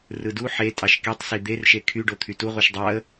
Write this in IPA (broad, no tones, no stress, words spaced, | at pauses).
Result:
rɯdu ħe tʼɑʃkitˤsi d̪erʃe kʰyɖo t̪ʰytu ʁʷiʃdˤɑə̯